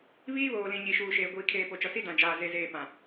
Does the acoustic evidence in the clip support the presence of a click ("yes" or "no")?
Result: no